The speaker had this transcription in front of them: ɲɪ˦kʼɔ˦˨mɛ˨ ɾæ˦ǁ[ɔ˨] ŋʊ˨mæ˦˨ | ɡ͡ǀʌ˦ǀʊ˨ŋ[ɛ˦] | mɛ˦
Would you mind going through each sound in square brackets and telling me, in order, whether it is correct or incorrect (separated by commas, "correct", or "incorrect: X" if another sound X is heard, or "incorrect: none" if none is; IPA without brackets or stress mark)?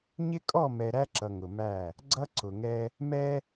incorrect: ʌ˨, correct